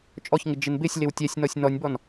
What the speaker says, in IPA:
t͡ʃʼ ɔ ç ŋ ɪ d͡ʒ ɪ n b ɪ sʲ l ɪ w tʲ ɛ sʲ n ɔ sʲ n ɔ nʲ b ɔ n

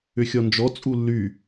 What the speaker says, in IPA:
ʏ xʲ ɔ n d͡ʒ ɔ t͡sʼ u lː y

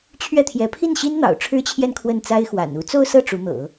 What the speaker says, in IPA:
t͡ɕʰ ɥ ɛ˥˩ t̪ʰ j ɛ˧˥ pʰ i˥˩ n ɕ i˥ n n̪ ɑ̰˨˩ ʊ̯ ʈ͡ʂʰ ɻ̩˥ t͡ɕʰ j ɛ˥˧ n kʰ w ə˥˩ n t͡s a˥ ɪ̯ x w a̰˨˩ n u˥ t͡s o˥˧ ʊ̯ s ɤ˥˩ ʈ͡ʂ u˧˥ n̪ ɤ̰˨˩˦

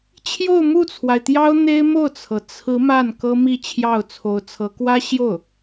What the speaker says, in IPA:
t͡ɕʰ j o˥˧ ʊ̯ m u˥˩ t͡sʰ w a˩ ɪ̯ t̪ j ɑ˥ ʊ̯ n̪ e˥ ɪ̯ m o˥˩ ʊ̯ t͡sʰ ɤ˩ t͡sʰ ɹ̩˧˥ m a˥˩ n k ɤ˥ m i˥˧ t͡ɕʰ j ɑ˥˩ ʊ̯ t͡sʰ o˧˥ ʊ̯ t͡sʰ ɤ˧˥ k w ä˥ ɕ j o˥˩ ʊ̯

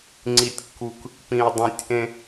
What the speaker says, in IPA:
ŋ͡ǀ i˦ tʲ kː u˦ k | p ĩ˦ ʊ̯ dˤ ũ˦ tʲ ʔ ẽ˥

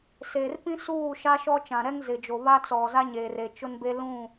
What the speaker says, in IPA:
s e˨ r p ĩ˦ s uː˦˨ ʃ a˦ ʃ ɔ˦ t͡ʃ ã˨ ɾ ɛ˦ ŋ z ɪ˨ d͡ʒ o˨ β a˦ t͡s ɔ˨ z a˦ ɲ eː˨ r e˨ t͡ʃ ʊ˦ n b e˦ l ũ˦˨

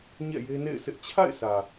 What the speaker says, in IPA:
ɲ ɛ̰˦˨ j e˦ n ḛ˦˨ ɪ̯ sʰ ɪ˦ ʔ t͡ɕʰ a̰˦˨ ɪ̯ s ä˨

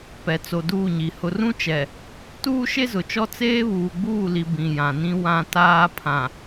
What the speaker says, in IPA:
p ɛ˨ t͡s o˨ d uː˦˨ ɲ i˨ h ʊ˨ r ũ˦ t͡ʃ ɛ˨ | t uː˦ ʃ e˦ z ʊ˨ t͡ʃ ɔ˦ t͡s eː˦ β uː˨ ɡ͡b uː˦˨ l i˨ b ĩ˨ j ã˨ n ĩ˦ w ã˦ t aː˦ pʰ ã˨

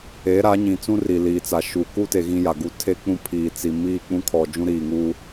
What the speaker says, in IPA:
e˨˦ ɾ a˨˦ ɲ ĩ˨ t͡s ũ˦ r i˨ l iː˨ t͡s a˨ ʃ u˨ k u˦ t e˨ ɣ ĩ˦ j a˨ ɡ u˦ tʰ e˦ k͡p ũ˦ pʰ iː˨ t͡s i˨ m iː˦˨ k͡p ũ˦ kʰ ɔ˨ d͡ʒ ũ˦ ɾ iː˨ ŋ uː˦

